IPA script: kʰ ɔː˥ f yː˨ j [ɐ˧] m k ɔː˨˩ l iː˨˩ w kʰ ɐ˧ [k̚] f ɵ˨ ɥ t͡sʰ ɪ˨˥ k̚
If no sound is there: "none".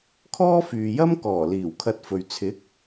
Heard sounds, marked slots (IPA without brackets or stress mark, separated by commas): ɐ˥, t̚